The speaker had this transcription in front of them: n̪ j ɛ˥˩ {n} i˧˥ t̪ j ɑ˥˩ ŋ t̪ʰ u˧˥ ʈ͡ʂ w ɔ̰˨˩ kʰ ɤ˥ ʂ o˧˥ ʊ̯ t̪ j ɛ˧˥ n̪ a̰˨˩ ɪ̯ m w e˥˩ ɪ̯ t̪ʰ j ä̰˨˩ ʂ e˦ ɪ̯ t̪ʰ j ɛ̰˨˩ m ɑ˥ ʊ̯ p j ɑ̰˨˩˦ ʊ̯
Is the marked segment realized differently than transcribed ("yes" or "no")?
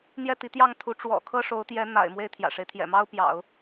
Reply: yes